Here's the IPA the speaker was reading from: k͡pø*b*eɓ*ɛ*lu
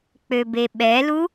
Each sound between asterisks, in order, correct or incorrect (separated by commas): correct, correct